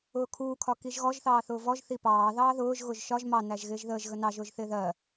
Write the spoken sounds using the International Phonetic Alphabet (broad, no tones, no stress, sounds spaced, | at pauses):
ʊː kʰ uː kʰ ɒ k i ʒ ɣ ɔ ʒ θ ɑː θ ʊː v ɔ ʒ θ i p ɑː ð ɑː ð ʊː ʒ ɣ ʊ ʒ ʃ ɒ ʒ m ɑ n æ ʒ ɣ ɪː ʒ ð əː ʒ ɣ ə n ɑ ʒ ʊː ʒ θ ɪː ð ɜ